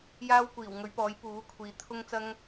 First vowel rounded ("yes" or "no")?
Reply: no